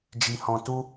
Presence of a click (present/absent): absent